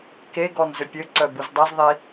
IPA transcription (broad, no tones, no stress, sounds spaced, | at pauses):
k e ɡ ɔ n z ø pʲ ø ǀ œ b u z dˤ ɛ z ðˤ i